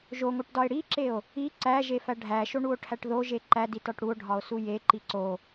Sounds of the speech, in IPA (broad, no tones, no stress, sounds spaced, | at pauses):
ʒ o ŋ o ʈ d ɒ e̯ ɽ i ǁ e o̯ | i ǀ æ ʒ e f æ ɖʱ æ ʃ o ɳ u o̯ ʈʰ æ ʈ ð o ʒ e ǃ æ d i t ɒ ʈ ɽ u o̯ ɖʱ ɒ o̯ s u j e ǃ i ǀ o